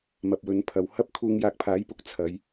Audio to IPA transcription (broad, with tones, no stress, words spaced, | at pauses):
mɐ˨p̚wɵ˨˧npʰɐ˨w hɐ˥p̚ kʰuː˧ŋjaː˧k̚pʰaː˨˥jpʊ˨˥k̚ t͡sʰɐ˨˧j